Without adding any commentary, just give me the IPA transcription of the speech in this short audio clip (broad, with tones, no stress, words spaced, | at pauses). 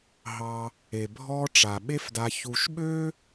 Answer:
ɦɑ˨ | e˩ bʱɔ˦ʈ͡ʂa˩ ɓe˦fda˨ çu˨ʃɓø˥